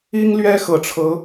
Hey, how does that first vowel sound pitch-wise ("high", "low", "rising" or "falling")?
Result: high